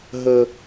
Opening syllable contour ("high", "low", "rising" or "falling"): low